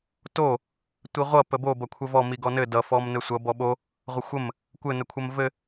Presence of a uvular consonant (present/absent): present